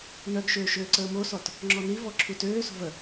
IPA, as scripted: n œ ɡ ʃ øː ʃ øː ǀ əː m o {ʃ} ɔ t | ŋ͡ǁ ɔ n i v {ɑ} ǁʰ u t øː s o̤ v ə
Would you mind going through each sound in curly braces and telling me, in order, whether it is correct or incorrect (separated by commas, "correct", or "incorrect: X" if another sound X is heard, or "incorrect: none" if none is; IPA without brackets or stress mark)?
incorrect: s, incorrect: ɔ